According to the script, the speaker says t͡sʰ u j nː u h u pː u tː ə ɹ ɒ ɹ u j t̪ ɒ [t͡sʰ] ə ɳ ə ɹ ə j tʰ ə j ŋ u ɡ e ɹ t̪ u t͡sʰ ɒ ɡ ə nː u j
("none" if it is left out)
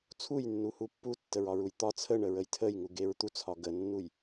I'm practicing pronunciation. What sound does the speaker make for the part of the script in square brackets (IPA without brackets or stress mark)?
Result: t͡sʰ